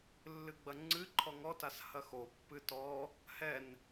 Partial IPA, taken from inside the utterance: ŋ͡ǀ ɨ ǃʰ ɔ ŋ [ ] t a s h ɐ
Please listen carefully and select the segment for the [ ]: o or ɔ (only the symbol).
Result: ɔ